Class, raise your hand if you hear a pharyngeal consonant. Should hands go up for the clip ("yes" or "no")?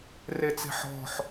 yes